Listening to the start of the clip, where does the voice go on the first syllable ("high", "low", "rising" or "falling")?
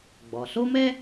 low